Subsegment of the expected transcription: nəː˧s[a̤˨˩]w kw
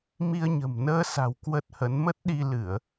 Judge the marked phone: correct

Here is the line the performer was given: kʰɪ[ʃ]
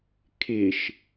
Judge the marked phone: correct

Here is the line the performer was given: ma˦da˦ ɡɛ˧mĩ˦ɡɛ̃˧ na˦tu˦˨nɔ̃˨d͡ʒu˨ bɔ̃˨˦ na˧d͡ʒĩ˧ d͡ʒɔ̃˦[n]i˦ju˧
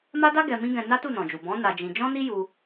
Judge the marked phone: correct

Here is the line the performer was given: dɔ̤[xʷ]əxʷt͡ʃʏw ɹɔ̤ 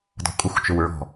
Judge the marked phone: incorrect: kʷʼ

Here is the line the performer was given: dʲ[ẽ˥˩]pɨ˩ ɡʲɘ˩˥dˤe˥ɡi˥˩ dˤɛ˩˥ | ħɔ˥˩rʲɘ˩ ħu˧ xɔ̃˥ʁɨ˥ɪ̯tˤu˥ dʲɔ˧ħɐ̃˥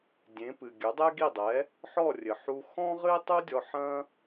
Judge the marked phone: incorrect: ẽ˩˥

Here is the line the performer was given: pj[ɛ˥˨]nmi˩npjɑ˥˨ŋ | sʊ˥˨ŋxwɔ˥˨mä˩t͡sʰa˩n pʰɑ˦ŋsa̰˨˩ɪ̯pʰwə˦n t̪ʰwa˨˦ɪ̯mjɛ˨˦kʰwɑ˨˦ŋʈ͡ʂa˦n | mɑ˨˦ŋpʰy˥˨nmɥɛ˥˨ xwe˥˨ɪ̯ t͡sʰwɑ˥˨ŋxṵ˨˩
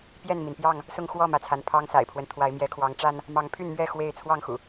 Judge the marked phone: correct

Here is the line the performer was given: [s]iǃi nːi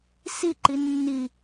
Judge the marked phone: correct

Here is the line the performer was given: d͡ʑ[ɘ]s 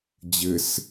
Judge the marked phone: correct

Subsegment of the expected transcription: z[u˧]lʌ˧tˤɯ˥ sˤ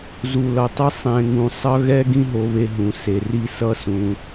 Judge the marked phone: correct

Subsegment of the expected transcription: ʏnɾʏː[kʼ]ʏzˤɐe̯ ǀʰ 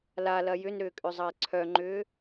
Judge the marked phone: correct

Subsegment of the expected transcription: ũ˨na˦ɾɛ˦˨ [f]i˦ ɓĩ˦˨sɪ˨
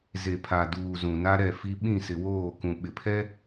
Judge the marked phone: correct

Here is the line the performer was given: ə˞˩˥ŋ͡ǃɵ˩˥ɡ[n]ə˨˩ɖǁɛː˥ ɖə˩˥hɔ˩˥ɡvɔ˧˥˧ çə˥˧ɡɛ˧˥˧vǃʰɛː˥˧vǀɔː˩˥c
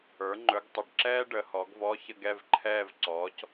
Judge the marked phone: incorrect: tˤ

